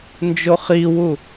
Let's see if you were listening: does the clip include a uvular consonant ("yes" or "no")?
yes